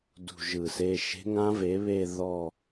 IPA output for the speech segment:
d ṳ˦˨ ʒ ɯ˧˩˧ s e˧˥˧ ʃ e̤˧˥ ŋ ã˧˥ v e˩˥ β e˦˨ ð ɔ˦˨

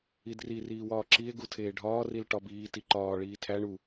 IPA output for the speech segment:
i d r i r iː w ɒː ǁ i e̯ ɡ u tʰ eː ɖʱ ɒː r i l ʈ ɒ b iː t i ǃ ɒː ɭ iː tʰ æ ɳ u

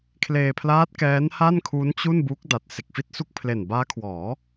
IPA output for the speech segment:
kʰ l eː˧ pʰ l aː˦˥ t̚ k ɛː˦˥ n h a˥˩ n kʰ u˦˥ n t͡ɕ u˥˩ n b u˦˥ k̚ d a˨˩ t̚ s e˨˩ k̚ f i˥˩ t̚ s u˥˩ k̚ pʰ l e˨˩ n b aː˦˥ kʰ w ɔː˩˦

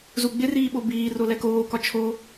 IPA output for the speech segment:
z u ɡ͡b ɪ r iː ɓ o b iː r o l ɛ k oː k ɒ t͡ʃʰ o

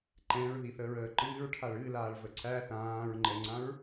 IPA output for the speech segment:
ǃ ɛ̃ ɹ ð i θ əː ɹ əː ǃ ɨː ɹ ʈʰ a ɭ ɨ l aː ɭ v ə ǀ æ θ ãː ɹ ŋ͡ǃ ɛ ŋ͡ǀ ã ɹ

